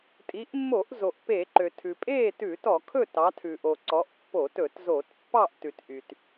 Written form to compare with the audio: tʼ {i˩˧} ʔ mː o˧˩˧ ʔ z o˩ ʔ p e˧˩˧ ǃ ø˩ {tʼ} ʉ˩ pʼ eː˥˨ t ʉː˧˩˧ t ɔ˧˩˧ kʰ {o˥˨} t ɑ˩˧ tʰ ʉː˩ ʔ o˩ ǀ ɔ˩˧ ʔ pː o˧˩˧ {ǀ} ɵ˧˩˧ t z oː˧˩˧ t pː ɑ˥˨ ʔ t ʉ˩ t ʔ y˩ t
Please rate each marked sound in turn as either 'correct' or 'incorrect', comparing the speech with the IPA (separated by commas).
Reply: correct, incorrect, incorrect, incorrect